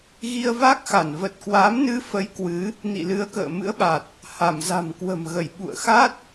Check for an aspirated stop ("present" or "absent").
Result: absent